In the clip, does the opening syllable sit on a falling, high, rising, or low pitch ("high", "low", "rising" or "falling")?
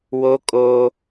high